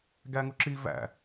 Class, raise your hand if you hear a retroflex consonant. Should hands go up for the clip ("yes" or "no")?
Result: no